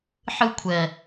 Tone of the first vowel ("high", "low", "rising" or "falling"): high